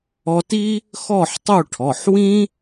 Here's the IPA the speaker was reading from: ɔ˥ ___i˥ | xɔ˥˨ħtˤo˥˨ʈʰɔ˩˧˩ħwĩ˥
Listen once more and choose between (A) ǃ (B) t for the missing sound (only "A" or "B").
B